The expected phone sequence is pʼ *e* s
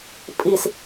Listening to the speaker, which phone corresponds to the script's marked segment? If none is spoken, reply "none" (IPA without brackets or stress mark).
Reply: i